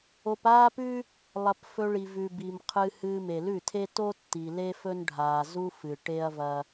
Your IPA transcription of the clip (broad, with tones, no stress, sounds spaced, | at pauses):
o˧ p aː˦ p ʉ˦ | lˠ ɐ˧ p f ɵ˧ ɭ i˨ v ʉ˨ b i˨ m qʰ ɨ˧ h ɨː˧ m e˨ l ʉ˦˨ tʰ e˦ t o˦ tː i˨ l e˦ f ɵ˦ n ɖʱ aː˨ z u˦ f ɨ˨ ʈ e˦ ɐ̯ v ɐ˧